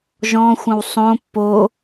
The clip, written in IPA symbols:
ʒ ɔ̃ xʷ ə̃ w sˤ õ pː o

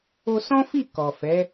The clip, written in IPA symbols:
o˧ s ɔ̃˦ f i˦˨ k ɔ˨ f ɛ˨˦

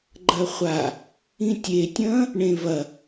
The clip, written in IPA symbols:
ɡ͡ǃ ɐ χʷ a | ĩ tʲ e tʲ ɐ̃ː | ɳ ẽ v ɐ

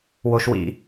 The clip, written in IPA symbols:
w o˦ ʃ w ḭ˦

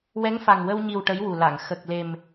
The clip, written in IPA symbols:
w ɛ˧˥ ŋ f a˨˩ ŋ w ə˧ w ɲ i˨˩ w ʈ ə˧˥ j w u˨˩ l a˨˩˨ ŋ x ə˨˩ k̚ l e˨˩ m

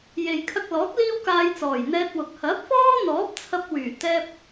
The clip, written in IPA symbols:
j e˨ j kʰ ɐ˧ k̚ l ɔː˨˥ k̚ l iː˥ w k aː˧ j t͡s ɔː˨˩ j n̪ ɛː˧ t̚ w ʊ˨ k̚ h ɐ˨˥ p̚ f ɔː˥ n̪ ɔː˨˥ p̚ t͡sʰ ɐ˧ p̚ w yː˨˩ t̪ ɛː˧ p̚

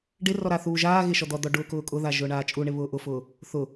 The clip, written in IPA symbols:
ɖ ɪ r ɔ ɾ a θ uː ʒ aː ɣ ɪ ʃ ɔ d̪ ɔ d̪ ɔ ɖ ʊː k ʊː kʼ ʊ ð a ʒ ʊː ɳ aː t͡ʃʼ u ɳ ɪ β ʊː ʔ ʊ f ʊː | θ ʊ

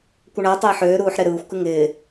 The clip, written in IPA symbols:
kʷ ə ɳ a tˤ ɪː ħ øː ɾ uː ħ ɾ e ɾ ɯː xʷ k ɨ ŋ ɪː

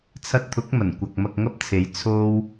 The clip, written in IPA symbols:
t͡sʰ ɐ˧ t̚ t̪ʰ ʊ˨˥ k̚ m ɐ˨˩ n kʷ ɐ˨ k̚ m ɐ˧ k̚ ŋ ɐ˥ p̚ t͡sʰ e˨˥ j t͡sʰ o˥ w

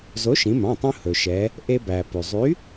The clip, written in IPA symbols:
z o˨˥ ʃ ĩ˩˧ m ɑ̃˩˧˩ tˤ ũ˧ h ɵ˩ ʃ ɛ˩˧ | ʔ e˧ b æ˩ p y˩ zˤ y˨˥

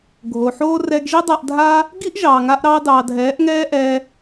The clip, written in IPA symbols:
ɡʱ o˨ ħ oː˦ r ɛ˧ ɡ ʒ i˦ dˤ a˧ ʔ dʱ a˦ | ɡ i˦ ʔ ʒ ɑː˨ ŋ a˧ ʔ ɾ ɑː˧ d ɑː˨ dʱ ɛː˨˦ ʔ ŋ ɛː˦ ʔ ɛ˦

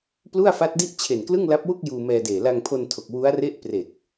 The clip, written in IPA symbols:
p l u˥˩ a̯ f a˦˥ t̚ d i˥˩ ʔ t͡ɕʰ e˨˩ n k l ɯ˥˩ ŋ l a˦˥ p̚ w u˥˩ k̚ j uː˧ m ɛː˧ d eː˨˩ l a˧ ŋ pʰ o˧ n tʰ o˨˩ k̚ w u˦˥ a̯ r e˥˩ ʔ p r e˨˩ k̚

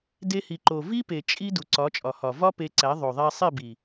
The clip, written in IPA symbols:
d e˧ h i˨ ǃ o˨ v i˦ p e˨ t͡ʃʼ i˦ d u˨ ǀ ɒ˨˦ t͡ʃʼ ɒ˨ h ɒ˨ v ɒ˦ p e˧ ǀ æ˨˦ ðˤ o˨ ðˤ æ˧ sˤ e˦˨ b i˨

